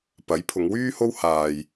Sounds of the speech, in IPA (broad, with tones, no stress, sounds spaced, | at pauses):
p ɐ˨˥ j pʰ ʊ˨˧ ŋ w yː˥ h o˥ w h aː˨ j